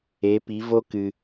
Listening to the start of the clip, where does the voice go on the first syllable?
rising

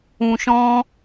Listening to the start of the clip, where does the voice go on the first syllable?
low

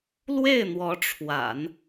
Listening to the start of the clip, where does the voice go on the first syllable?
falling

